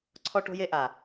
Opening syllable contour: high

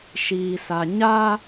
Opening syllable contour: low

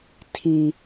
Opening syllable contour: low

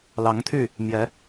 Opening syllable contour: rising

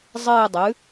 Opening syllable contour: falling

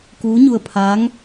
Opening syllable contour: rising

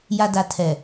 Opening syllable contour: low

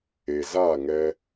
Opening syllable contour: low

